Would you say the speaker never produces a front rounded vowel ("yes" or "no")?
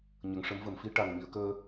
yes